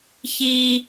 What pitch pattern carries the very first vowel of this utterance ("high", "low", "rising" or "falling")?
high